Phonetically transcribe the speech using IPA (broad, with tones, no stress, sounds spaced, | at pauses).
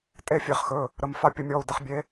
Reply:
tʼ e˥˨ fʲ e˨˦ χ x ɵ˩˧˩ | ɾ ə˩˧˩ m f a˥˨ pʲ ə˨˦ mʲ ɔ˩˧˩ u̯ d ə˨˦ χ bʲ e˨˦